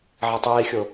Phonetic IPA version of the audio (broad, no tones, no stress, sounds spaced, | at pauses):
ʕ ɐ tˤ iː xʲ o